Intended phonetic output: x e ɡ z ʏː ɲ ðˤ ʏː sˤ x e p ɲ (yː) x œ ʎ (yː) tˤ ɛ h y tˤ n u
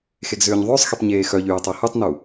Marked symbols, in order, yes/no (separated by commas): no, yes